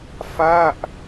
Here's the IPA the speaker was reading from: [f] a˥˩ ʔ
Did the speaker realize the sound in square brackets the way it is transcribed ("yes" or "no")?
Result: yes